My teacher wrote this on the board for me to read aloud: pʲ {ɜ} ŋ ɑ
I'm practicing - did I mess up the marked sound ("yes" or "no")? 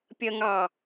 no